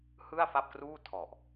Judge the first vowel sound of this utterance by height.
high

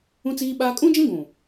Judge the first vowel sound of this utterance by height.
high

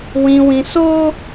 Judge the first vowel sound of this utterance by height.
high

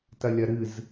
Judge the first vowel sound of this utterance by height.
low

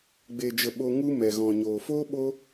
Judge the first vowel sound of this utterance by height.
mid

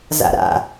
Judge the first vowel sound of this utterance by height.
low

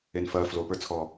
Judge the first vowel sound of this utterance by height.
mid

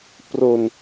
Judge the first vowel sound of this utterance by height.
mid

